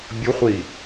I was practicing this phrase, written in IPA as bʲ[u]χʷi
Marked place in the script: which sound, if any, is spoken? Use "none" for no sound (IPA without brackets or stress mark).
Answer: u